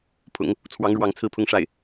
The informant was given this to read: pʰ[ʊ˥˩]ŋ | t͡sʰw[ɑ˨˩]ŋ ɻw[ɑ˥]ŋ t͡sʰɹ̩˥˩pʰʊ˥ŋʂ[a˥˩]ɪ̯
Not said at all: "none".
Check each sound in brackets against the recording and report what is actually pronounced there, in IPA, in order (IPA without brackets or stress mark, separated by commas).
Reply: ʊ̰˨˩˦, ɑ˧˥, ɑ˥˧, a˥˩